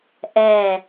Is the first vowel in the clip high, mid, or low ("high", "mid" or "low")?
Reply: mid